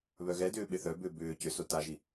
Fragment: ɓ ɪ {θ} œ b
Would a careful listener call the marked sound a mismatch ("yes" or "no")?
no